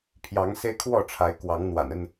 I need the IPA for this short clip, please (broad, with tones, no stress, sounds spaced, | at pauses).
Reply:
pʰ j ɑ˨˦ ŋ s e˦ ɪ̯ kʰ w ɔ˥˨ ʈ͡ʂʰ a˨˦ ɪ̯ k w ɑ˨˦ ŋ n̪ w a̰˨˩ n ə˥˨ n